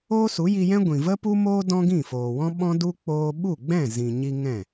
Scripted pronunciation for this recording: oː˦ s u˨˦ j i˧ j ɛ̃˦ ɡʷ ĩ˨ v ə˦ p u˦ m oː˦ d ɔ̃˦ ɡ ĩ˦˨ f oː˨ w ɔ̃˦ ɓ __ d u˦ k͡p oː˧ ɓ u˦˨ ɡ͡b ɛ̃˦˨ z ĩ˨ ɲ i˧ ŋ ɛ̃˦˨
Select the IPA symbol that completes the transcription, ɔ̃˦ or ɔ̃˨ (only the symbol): ɔ̃˦